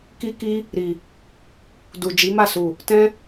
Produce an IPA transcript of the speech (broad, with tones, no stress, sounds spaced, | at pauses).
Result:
k i˦ k i˦ | ɾ i˨ | d u˨ d͡ʒ i˨˦ m a˦˨ s u˨ | t ɛ̃˦